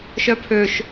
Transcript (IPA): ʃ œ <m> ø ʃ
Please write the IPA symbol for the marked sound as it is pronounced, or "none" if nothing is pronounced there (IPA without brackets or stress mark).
pʰ